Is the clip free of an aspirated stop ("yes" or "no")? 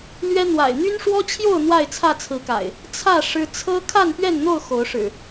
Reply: no